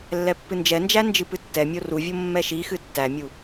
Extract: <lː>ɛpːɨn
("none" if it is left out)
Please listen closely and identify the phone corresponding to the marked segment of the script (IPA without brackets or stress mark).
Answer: lː